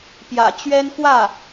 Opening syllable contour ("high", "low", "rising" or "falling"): low